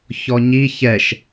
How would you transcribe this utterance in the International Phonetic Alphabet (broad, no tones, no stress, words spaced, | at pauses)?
çɔɲi çɛʃ